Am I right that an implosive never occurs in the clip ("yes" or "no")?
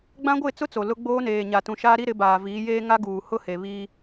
yes